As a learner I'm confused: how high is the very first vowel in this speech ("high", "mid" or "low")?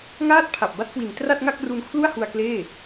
low